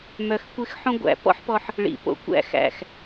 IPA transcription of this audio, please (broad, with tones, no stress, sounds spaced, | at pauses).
m œ˧ x kʷ ɪ˦ x ħ õ˦ ɡʷ æ̰˧ p ɔ̰˦ ħ p ɔ˧ ħ | ɭ ḭ˨ p o̰˨ kʷ æ̰˧ x æ̰˨ x